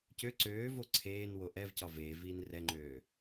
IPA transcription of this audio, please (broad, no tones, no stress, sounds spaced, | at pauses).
c ø ǀ øː v o ǀʰ eː n w o ʔ ɛ v c ɒ v eː v iː n r ɛ ŋ͡ǃ øː